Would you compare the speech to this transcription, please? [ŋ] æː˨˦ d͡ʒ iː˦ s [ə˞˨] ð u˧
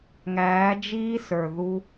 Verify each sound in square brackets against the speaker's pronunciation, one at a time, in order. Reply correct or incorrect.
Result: correct, correct

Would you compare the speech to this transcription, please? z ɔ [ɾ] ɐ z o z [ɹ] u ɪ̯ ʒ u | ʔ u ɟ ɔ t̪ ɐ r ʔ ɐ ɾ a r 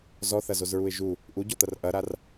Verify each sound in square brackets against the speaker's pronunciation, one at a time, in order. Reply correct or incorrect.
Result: incorrect: θ, correct

